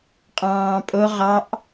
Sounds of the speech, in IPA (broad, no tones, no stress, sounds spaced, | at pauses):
qʼ ɑ̃ː pʼ o ʁ ɑ ʔ